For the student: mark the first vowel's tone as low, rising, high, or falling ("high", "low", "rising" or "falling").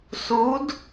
rising